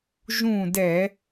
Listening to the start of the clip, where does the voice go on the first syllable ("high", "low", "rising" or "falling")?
falling